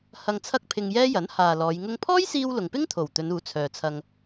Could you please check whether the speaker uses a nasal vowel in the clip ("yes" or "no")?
no